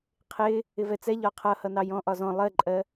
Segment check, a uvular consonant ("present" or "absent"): present